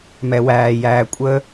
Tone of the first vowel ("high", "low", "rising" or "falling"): low